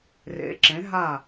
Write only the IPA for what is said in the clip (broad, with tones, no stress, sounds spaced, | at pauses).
r ḛ˩˧ ǁ ẽ˩˧ ɦ a˧˩